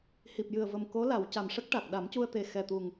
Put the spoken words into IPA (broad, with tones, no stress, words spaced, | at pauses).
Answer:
hi˨˩p̚jɨ˨˩ə̯və˨˩m ko˧˥la˨˩˨w ca˨˩mʂə˦˥k̚ʈa˨˩k̚ ɗa˨˩˦mcu˧ə̯t̪e˨˩ xɛ˨˩t̪u˨˩ŋ